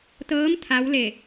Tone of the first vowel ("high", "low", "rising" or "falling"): rising